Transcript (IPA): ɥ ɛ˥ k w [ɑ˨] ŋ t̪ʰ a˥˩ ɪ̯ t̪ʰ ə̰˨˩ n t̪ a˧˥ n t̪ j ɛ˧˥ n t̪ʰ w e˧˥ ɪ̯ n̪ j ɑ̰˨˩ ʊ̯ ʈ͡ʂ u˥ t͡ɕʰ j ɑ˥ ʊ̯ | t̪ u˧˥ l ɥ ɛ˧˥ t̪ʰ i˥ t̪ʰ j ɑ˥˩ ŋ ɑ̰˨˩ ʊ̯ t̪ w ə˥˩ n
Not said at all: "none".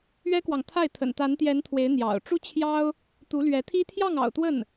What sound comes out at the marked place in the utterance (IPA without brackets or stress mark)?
ɑ˨